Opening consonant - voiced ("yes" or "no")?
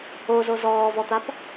yes